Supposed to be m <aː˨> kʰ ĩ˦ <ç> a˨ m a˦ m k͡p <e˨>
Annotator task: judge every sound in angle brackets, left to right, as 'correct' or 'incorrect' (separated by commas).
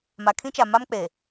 incorrect, incorrect, incorrect